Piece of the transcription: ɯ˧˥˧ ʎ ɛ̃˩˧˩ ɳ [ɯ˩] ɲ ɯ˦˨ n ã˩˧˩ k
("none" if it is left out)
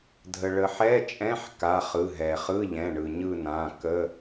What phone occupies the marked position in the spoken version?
ɯ˩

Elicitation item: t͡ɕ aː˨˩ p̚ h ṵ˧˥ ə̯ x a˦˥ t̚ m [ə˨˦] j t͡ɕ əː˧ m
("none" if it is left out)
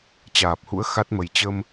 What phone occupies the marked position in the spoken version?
ə˧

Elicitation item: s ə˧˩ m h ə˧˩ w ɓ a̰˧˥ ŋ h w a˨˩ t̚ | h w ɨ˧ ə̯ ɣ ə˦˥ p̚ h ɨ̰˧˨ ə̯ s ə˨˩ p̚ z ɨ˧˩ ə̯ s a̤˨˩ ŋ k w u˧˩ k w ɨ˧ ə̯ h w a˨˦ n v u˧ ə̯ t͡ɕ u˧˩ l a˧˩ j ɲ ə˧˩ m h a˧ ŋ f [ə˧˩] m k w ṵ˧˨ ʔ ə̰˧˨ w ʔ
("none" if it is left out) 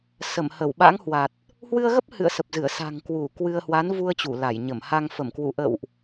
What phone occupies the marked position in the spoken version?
ə˧˩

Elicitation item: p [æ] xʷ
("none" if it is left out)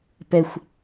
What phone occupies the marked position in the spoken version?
ɛ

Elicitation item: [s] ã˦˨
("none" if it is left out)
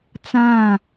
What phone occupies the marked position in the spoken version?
t͡s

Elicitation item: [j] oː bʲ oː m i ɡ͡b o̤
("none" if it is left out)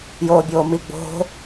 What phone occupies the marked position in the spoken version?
j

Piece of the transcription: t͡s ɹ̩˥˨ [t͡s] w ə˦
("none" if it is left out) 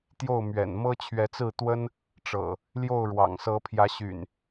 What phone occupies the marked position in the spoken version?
t̪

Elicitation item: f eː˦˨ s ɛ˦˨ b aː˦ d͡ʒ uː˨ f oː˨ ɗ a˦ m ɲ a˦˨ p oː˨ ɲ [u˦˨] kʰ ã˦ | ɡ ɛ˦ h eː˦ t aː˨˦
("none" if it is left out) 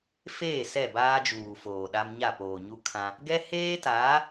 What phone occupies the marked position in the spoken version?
u˦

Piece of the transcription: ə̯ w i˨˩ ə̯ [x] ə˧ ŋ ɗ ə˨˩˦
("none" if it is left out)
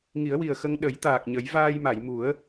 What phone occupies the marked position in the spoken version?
x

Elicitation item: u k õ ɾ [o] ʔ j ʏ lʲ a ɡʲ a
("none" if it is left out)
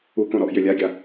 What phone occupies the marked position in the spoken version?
ɔ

